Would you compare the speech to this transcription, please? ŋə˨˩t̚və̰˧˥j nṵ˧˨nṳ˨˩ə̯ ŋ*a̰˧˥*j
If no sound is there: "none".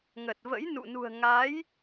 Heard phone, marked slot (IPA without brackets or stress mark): a˨˦